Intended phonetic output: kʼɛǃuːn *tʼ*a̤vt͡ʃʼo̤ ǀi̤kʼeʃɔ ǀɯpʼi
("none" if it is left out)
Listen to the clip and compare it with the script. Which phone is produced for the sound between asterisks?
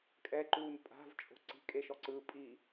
pʼ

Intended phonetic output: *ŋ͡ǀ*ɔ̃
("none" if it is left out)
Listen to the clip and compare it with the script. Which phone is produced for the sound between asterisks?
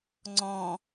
ŋ͡ǀ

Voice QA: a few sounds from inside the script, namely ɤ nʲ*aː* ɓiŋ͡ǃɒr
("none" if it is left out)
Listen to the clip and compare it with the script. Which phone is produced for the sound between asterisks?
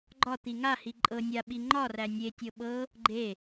a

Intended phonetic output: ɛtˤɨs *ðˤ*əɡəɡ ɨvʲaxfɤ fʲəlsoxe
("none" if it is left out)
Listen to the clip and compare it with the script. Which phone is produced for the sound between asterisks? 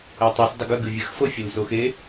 dˤ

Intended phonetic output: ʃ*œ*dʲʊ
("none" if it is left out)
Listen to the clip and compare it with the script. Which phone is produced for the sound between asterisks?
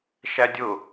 æ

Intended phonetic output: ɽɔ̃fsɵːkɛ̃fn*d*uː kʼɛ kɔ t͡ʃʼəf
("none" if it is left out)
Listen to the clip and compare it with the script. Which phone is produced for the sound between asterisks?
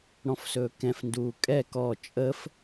d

